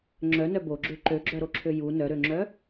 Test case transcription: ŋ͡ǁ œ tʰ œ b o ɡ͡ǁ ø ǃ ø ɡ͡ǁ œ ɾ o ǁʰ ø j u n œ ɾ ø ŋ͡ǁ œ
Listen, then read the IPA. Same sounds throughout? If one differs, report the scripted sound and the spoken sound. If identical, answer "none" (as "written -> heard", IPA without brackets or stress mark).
tʰ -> n